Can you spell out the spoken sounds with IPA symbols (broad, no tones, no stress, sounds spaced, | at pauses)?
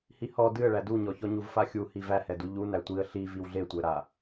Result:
h i h ɔ d ɨ ə̯ ɭ æ d u ɲ ɔ ç ɔ ɲ u v f a xʲ u h i v æ h ɛ d u ʎ u n æ tʷ i ə̯ ɬ i v i w ɮ e tʷ ɛ ɾ a